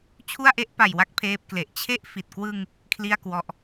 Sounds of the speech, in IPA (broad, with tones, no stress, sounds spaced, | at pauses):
t͡ɕʰ u˥˩ a̯ ʔ e˥˩ ʔ p a˨˩ j w a˥˩ k̚ pʰ eː˦˥ p̚ k l e˨˩ ʔ t͡ɕʰ e˥˩ ʔ f i˨˩ t̚ k w ɯ˧ ŋ | kʰ l i˥˩ a̯ k w ɔ˦˥ ʔ